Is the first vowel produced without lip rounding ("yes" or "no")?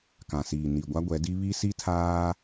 yes